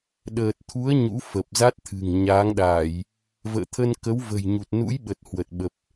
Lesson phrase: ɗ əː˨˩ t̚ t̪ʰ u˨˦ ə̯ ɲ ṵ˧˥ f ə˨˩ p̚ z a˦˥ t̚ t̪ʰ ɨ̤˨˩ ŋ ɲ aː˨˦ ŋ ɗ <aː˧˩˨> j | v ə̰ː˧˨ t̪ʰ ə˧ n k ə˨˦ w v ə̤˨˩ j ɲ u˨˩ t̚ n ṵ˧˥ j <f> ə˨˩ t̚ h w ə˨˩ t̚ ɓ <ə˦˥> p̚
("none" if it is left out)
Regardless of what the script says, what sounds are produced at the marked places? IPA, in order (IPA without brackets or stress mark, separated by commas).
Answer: aː˧˩˨, ɓ, ə˨˩